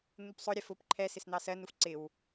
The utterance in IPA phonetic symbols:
n̪ u p sˤ ʊ ɾʲ ɛ f ʊ p ǃʰ ɛ s ɪ s n̪ ɑ s ɜ n u f ǀ ɪ w

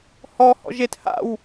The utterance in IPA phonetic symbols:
h ɔ h ɔ̰ ʒ e t h a̰ w

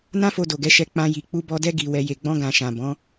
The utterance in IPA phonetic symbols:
n ã˦ f o˧ d o˨ ɡ ɛ˨˦ ʃ ɛ˧ k͡p ã˧ j i˨ k͡p u˧ b ɔ˧ d ɛ˦ ɡ i˧ w ɛ˧ j e˨ ɡ͡b ɔ̃˧ ɡ ã˨ ʃ ã˨ b ɔ̃˨˦

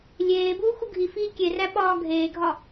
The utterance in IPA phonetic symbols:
lʲ eː b uː x u ɡʱ i f iː kʲ e r æ ɓ ɒː ɡʱ eː ɡʱ ɒ

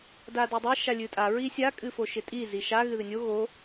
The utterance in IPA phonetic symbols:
d a d o dˤ ɪ ʃ a lʲ ɨ tʼ a ɹ i sʲ a kʼ ɨ f o ʃ ɪ tʼ i z i ʃ a ɣ ɨ ð ɪ nʲ o ɣ o

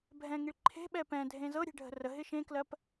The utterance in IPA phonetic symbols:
bʱ ɛ̃ ŋ i ɭ ǃʰ e̤ ɓ ɛ p ɛ̃ dʱ ẽ z ɤ ɾʲ e̤ ɖʱ ə̤ r ə ɦ ɪ ʃ ẽ k l ɜ p

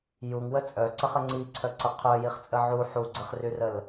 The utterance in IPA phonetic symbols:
j u ŋ w ə t͡sʼ œ ǀ ə χ ə ŋ͡ǀ i ǀʰ œ ǀ ə qʰ œ j i χ t͡sʼ ə ʕ u ħ u ɡ͡ǀ ə χ r y r ə l

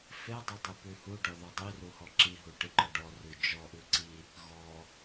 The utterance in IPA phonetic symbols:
f e dˤ ʉ dˤ i p ʉ h u ɖ ɔ ð ɔ dˤ i r u h ɔ ǁ i ɦ u ʈ i ǃ ɔ ɖ ɔ r ʉ d͡ʒ ɔ ʔ ʉ ǀ i | ɣ ɔ

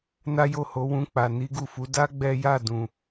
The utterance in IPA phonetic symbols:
n a˦ j o˦˨ h o˨˦ w ũ˧ k͡p a˨ n i˨˦ ɡ u˦˨ f u˨˦ d a˦ ɡ͡b ɛ˦ j a˦˨ d ũ˨

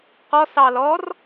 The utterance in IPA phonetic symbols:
q ɔ s ɑ l ɔ r

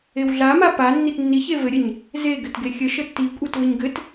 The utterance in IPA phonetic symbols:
e w ɮ a m a p a nː i t nː i ç e v ɘ ɾʲ ə ɲ | z e ɡ ɘ t ɡ e xʲ ə ʃ ə tː i kʷʼ e t v ɘ ɲ ɡ ɘ t

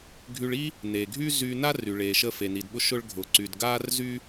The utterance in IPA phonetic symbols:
ɡʱ y˧ ɭ i˥ | n eː˩ ɡʱ yː˥ z yː˧ n a˥ r y˩ ɭ eː˩ ʃ ə˧ f e˩ n i˩ d ɓ ʊ˧ ʃ ʊ˧ ɭ ɡʱ ʊː˩ ǀ y˩ d ɡ aː˥ r z y˥

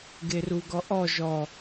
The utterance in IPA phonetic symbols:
ɡ e r u ɡ ɔ ʔ ɔ ʒ ɔ

